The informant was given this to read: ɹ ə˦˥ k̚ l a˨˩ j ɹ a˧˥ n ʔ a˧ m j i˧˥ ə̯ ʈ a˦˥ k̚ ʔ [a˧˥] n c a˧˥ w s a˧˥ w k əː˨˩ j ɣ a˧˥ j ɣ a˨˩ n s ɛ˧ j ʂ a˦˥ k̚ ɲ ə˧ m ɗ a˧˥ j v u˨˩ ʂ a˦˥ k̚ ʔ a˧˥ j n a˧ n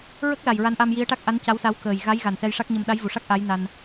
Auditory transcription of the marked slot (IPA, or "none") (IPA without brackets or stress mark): a˧˥